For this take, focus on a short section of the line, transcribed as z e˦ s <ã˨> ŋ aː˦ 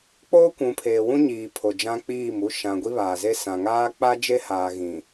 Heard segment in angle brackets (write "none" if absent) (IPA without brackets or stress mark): ã˨